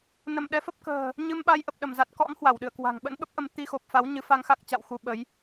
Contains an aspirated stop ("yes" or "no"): no